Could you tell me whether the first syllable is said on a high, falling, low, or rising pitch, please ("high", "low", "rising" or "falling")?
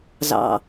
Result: low